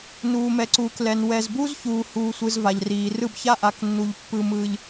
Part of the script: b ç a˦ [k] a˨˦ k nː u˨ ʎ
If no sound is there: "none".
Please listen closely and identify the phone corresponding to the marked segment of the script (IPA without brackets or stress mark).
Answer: ʔ